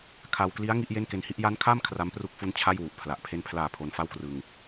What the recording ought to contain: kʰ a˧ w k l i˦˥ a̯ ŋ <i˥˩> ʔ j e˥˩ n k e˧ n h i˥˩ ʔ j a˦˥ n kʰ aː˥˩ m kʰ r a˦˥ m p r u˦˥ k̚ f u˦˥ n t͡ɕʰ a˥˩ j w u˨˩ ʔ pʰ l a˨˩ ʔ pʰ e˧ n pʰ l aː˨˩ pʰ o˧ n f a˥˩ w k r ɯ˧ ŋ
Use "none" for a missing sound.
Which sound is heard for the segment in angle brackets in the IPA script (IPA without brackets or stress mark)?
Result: i˦˥